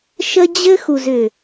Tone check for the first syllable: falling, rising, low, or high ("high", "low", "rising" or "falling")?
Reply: high